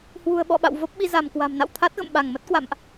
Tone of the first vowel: low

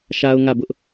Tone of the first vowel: high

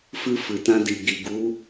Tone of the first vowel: high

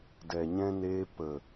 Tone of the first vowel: low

